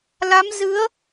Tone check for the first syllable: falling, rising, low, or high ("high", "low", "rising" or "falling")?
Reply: rising